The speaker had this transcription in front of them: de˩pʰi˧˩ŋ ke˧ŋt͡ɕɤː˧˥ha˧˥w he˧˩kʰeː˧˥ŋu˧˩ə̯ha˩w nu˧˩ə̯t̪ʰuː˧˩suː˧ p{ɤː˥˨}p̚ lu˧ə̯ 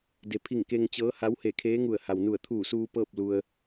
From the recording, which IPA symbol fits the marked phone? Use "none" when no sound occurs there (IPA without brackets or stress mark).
ɤː˥˨